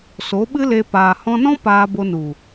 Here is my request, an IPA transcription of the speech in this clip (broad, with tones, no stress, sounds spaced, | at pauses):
s o˨˦ ɓ ɨ˦ l e˧ p aː˨ h ɔ̃˧ n ɔ̃˦ p aː˧ b o˧ n u˨